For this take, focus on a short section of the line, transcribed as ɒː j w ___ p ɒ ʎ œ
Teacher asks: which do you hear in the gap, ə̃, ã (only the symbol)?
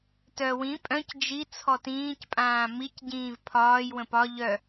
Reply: ə̃